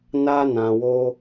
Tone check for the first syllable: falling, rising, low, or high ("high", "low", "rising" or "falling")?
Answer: high